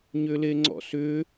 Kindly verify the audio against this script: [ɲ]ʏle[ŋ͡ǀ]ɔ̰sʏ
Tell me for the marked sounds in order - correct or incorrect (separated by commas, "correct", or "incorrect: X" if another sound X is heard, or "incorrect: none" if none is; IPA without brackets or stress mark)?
correct, correct